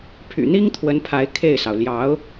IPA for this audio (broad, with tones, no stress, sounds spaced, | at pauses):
pʰ y̰˨˩ n̪ i˥ ŋ t̪ʰ w ə˧˥ n pʰ a˧˥ ɪ̯ kʰ e˥˩ ɪ̯ s ɑ˩ ʊ̯ l j ɑ˧˥ ʊ̯